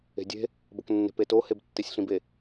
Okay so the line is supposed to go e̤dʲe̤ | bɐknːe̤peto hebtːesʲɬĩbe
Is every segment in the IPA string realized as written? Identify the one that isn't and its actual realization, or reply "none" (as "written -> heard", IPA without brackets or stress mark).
none